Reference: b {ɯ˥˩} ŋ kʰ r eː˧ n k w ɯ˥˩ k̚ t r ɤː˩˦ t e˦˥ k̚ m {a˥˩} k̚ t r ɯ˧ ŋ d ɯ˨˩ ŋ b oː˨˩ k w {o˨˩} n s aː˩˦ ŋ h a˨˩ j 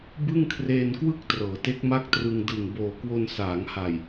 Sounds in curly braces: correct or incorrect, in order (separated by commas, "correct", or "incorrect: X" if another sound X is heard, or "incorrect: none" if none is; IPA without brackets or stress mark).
correct, correct, incorrect: o˧